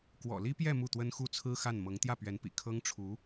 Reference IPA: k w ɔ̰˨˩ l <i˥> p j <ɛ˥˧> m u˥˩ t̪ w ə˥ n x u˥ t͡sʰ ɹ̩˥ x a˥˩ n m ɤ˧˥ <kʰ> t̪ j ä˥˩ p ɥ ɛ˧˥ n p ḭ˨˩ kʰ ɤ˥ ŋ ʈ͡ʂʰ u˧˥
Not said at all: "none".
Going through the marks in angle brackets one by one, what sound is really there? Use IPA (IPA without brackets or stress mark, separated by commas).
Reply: i˥, ɛ˥˧, ŋ